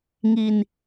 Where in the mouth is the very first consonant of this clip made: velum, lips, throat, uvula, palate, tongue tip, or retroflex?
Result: velum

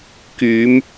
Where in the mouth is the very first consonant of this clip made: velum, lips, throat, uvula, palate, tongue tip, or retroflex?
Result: velum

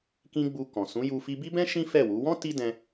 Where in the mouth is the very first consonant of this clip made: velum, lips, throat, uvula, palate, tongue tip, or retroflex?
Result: velum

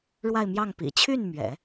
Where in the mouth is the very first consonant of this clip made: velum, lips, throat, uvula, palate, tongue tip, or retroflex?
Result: retroflex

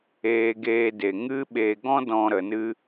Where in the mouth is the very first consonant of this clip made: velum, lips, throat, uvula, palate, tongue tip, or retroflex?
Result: velum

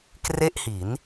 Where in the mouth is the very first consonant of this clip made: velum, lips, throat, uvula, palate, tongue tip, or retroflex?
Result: velum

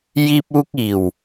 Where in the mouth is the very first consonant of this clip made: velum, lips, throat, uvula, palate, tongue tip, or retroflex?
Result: palate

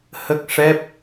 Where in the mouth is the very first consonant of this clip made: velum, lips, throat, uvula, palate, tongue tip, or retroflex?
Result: throat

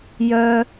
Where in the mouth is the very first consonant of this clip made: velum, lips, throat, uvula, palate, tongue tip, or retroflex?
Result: palate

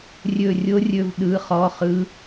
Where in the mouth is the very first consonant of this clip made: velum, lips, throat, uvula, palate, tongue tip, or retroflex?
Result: tongue tip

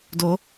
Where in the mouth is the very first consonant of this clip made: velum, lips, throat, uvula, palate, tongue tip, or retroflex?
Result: tongue tip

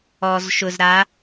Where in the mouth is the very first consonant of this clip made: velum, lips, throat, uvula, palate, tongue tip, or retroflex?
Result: tongue tip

